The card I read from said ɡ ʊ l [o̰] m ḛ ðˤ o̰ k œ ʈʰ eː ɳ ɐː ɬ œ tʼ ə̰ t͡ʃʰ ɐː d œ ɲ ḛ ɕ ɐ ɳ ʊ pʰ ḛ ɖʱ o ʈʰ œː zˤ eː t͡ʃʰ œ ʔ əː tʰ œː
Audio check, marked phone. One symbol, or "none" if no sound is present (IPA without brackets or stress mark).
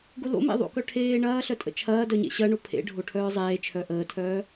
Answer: o̰